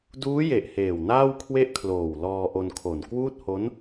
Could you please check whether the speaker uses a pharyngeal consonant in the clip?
no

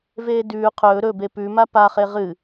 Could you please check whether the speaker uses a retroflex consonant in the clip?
no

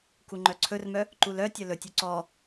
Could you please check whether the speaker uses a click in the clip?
yes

